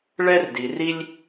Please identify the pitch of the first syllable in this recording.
high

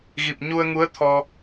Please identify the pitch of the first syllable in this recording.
low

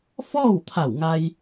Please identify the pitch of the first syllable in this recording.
falling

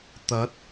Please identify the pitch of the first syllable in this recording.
rising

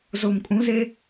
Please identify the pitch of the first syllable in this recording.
low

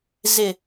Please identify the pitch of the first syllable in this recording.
low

